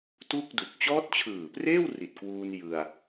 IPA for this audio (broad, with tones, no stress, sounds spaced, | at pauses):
t u˥˩ k̚ d u˨˩ k̚ t͡ɕ ɔː˦˥ t̚ t͡ɕʰ ɯː˨˩ p r eː˥˩ w r i˨˩ t̚ k w uː˧ n j ɯ˧ a̯